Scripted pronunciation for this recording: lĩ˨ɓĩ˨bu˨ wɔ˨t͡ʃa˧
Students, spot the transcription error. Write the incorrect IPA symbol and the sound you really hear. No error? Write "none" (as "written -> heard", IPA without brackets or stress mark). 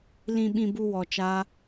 none